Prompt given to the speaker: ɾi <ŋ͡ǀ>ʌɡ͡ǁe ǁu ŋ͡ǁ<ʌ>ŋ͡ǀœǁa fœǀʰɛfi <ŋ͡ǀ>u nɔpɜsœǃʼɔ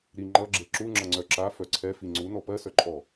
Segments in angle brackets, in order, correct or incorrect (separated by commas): incorrect, correct, correct